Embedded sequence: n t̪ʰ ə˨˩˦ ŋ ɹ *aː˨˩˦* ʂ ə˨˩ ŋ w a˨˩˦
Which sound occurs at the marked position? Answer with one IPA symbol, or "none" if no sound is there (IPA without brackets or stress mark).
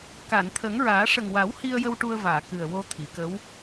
aː˨˩˦